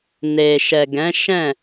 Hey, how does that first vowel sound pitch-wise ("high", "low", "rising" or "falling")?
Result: low